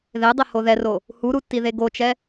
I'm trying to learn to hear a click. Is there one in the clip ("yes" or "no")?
no